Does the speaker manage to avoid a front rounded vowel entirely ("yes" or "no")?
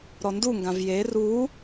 yes